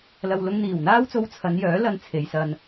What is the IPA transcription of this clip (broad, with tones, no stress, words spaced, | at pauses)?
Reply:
lɐ˧w lʊ˧ŋn̪iː˨˩wn̪aː˥wt͡so˧w t͡sʰɐ˨˧njœː˨˥lɐ˨˧n t͡sʰe˨˧jsɐ˧n